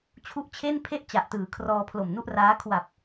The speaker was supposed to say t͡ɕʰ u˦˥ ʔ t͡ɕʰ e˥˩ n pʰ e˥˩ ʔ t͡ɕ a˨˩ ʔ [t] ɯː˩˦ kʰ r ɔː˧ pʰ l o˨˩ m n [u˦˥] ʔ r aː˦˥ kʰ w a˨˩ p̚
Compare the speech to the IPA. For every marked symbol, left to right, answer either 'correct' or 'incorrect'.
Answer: correct, incorrect: u˥˩

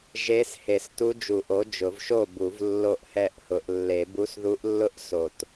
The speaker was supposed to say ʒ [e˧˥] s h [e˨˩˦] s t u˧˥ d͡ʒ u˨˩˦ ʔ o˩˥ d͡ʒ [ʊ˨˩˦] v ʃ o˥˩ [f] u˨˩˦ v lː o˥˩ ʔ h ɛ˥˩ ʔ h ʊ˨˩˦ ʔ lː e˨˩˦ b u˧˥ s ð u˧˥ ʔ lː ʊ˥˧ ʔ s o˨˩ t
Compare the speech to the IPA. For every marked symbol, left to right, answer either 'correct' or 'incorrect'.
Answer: correct, correct, correct, incorrect: b

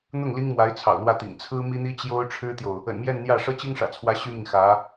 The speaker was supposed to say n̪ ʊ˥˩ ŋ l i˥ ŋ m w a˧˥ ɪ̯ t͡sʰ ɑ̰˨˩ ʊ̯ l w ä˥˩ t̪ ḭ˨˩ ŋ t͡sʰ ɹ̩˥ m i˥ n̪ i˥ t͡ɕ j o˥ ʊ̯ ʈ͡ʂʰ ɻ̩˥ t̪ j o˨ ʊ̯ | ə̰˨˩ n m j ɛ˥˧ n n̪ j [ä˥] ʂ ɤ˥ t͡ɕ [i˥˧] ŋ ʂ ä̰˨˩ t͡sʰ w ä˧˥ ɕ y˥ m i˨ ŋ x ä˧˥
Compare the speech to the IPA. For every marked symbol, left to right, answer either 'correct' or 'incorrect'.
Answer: incorrect: ä˥˩, incorrect: i˥

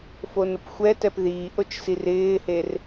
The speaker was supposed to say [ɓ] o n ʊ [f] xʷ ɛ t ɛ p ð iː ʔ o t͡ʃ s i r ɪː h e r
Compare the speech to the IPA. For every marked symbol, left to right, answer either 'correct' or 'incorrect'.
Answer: incorrect: f, incorrect: p

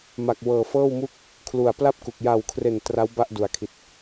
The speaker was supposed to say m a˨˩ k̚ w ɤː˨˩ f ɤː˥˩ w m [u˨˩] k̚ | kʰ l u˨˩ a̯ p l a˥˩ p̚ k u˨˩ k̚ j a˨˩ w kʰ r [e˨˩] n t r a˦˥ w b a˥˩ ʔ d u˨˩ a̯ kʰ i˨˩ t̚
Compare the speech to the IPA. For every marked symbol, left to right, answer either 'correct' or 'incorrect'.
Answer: incorrect: u˥˩, correct

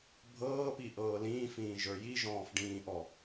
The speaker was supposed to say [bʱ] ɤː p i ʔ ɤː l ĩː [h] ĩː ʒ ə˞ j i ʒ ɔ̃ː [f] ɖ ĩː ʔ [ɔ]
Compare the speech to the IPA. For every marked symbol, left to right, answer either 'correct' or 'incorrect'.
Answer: correct, incorrect: f, correct, correct

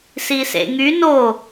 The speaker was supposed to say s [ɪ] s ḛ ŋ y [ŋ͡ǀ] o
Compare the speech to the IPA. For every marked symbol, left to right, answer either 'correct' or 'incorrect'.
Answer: incorrect: i, incorrect: n

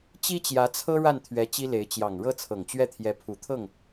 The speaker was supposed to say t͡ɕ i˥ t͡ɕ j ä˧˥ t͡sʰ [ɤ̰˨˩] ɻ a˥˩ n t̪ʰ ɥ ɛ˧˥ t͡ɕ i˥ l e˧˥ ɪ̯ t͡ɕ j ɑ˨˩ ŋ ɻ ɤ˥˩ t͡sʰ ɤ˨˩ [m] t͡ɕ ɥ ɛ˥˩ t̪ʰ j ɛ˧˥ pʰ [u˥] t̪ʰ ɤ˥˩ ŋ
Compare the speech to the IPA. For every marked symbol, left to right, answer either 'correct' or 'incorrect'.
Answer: incorrect: ɤ˥, incorrect: ŋ, incorrect: u˨˩

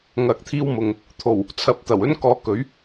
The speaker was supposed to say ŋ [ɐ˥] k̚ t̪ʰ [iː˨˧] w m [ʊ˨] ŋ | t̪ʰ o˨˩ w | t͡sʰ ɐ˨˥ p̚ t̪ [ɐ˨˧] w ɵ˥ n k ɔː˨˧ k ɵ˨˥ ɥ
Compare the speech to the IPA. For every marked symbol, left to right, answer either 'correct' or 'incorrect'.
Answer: incorrect: ɐ˨, incorrect: iː˧, correct, incorrect: ɐ˨˩

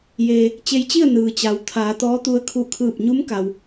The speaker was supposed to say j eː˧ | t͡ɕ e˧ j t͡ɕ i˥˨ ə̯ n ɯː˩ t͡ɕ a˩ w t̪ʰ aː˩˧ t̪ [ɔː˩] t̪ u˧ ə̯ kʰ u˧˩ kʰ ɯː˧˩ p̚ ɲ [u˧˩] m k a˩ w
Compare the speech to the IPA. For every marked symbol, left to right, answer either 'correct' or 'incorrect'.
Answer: incorrect: ɔː˧˥, incorrect: u˧˥

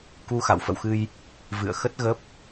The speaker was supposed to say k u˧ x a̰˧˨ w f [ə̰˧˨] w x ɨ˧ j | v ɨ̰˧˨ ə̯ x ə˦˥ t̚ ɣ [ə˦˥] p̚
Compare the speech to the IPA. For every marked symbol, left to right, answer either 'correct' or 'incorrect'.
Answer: correct, correct

